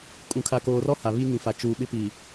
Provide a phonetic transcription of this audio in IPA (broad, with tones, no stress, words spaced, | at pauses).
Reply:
kʼũ˨ kʰa˨koː˨rɔ˦ ha˨βiː˦ŋĩ˨fa˨ t͡ʃuː˨ɓɪ˦piː˨